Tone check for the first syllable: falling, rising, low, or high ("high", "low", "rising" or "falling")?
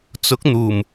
rising